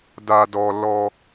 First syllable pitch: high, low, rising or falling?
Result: low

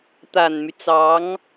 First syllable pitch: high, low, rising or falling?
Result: low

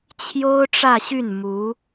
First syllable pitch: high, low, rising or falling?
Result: high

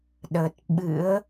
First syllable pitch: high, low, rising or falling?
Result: low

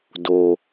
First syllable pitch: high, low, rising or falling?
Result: low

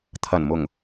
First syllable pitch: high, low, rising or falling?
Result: low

